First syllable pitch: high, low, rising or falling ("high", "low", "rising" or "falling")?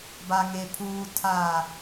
low